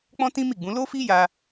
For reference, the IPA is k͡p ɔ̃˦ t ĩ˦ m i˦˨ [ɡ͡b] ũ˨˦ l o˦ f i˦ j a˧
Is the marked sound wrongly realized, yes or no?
no